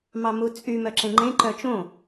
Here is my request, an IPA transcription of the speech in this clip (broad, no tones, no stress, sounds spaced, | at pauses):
m ɑ m u t͡sʼ y m œ ǁ ẽ ŋ͡ǃ ẽ ǃ œ t͡ʃ õ